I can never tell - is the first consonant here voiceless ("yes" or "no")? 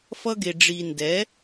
yes